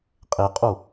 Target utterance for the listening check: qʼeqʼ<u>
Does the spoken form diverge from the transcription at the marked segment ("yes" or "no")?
no